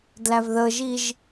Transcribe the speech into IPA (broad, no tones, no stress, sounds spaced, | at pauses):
d l æ v ð ə ʒ i ʒ